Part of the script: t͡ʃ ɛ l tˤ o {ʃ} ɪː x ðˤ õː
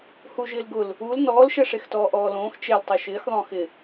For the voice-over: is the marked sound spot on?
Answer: yes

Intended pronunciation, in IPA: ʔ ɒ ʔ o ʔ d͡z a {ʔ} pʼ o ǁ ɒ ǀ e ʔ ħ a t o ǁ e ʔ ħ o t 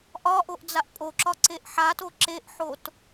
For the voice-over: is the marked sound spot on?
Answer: yes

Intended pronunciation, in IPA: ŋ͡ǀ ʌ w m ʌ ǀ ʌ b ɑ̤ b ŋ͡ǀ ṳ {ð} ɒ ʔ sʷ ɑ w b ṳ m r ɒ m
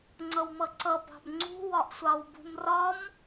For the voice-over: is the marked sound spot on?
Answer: no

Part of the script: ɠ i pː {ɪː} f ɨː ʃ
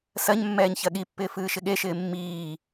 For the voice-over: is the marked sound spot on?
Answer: yes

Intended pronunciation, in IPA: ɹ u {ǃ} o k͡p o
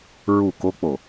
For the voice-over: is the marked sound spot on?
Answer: no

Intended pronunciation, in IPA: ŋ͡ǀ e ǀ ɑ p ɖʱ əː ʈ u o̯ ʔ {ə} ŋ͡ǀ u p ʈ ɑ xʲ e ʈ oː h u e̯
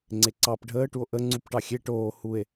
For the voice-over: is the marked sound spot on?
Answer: yes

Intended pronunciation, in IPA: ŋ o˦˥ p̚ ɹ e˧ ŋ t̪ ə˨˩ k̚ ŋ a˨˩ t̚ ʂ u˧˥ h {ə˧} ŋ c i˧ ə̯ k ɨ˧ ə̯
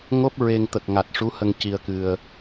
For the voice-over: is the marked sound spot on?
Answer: yes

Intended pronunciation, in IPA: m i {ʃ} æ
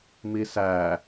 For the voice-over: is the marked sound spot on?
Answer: no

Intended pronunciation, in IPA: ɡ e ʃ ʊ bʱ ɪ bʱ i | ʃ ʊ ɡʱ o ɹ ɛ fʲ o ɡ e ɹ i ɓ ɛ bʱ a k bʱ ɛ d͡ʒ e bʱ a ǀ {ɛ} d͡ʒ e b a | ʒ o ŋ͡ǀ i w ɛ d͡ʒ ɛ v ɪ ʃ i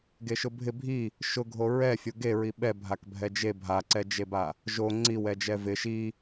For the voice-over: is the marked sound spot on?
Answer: yes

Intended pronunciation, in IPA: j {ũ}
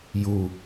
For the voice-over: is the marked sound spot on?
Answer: no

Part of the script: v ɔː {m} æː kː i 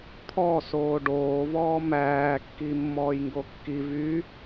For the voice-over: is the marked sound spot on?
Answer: yes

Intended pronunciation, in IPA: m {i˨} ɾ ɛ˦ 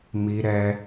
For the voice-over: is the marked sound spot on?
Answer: no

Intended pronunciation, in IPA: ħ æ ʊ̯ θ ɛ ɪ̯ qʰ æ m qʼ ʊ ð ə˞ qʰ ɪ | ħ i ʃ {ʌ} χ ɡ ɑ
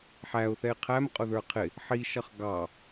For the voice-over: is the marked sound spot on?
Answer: yes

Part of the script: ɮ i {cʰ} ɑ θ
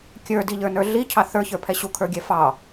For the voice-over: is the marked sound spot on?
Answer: yes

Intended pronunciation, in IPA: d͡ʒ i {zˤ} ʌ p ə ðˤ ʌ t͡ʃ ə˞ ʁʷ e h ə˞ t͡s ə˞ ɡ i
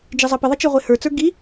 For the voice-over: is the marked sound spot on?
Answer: yes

